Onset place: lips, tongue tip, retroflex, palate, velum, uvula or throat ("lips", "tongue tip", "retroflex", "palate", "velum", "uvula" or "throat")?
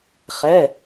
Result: uvula